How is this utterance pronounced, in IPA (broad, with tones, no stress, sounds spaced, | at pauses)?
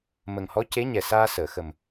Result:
m ə˨˩ ŋ h ɔ˧˥ c e˧˥ ɲ ɛ˨˩ s aː˧ s əː˨˩˨ x ə˨˩ m